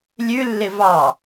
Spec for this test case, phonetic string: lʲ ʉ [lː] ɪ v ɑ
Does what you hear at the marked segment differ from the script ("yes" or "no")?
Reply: no